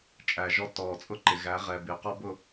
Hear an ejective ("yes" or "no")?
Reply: yes